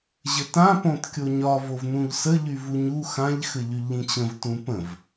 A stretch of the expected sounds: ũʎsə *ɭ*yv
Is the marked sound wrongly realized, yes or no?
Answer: yes